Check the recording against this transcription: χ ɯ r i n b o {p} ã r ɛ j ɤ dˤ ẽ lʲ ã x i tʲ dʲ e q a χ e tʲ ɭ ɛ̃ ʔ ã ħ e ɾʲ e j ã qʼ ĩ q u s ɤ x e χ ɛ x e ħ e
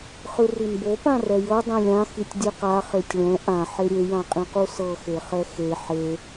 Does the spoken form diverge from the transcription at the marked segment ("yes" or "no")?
no